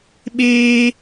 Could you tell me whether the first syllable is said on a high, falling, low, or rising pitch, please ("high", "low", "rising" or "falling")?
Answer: high